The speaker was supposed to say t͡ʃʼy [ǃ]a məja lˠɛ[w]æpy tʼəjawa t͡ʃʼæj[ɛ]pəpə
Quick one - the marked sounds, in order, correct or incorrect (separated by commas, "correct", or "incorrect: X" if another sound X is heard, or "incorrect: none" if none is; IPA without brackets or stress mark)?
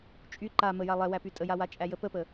correct, correct, incorrect: ə